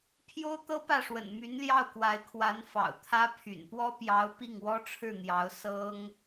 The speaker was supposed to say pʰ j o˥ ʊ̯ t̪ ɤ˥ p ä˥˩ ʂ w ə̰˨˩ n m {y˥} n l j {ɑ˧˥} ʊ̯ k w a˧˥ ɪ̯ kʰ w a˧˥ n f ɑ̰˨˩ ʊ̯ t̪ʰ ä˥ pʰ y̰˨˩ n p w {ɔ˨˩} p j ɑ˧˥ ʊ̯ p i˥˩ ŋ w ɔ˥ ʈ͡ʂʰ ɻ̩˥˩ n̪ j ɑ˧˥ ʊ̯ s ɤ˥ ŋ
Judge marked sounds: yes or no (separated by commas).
no, no, no